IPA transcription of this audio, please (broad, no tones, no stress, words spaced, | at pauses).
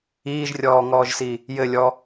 iːʒrʲɔːŋɔːʒsi | jɘlʲɔ